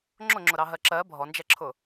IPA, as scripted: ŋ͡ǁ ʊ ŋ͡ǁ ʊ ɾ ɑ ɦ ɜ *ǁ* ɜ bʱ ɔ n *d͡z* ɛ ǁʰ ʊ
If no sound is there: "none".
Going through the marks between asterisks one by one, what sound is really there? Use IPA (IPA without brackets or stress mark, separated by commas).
ǁ, d͡ʒ